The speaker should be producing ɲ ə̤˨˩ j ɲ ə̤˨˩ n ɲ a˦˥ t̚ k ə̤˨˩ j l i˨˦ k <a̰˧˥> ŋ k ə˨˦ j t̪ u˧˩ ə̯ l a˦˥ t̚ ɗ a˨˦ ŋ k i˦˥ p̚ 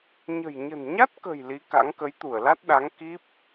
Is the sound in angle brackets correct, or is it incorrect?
correct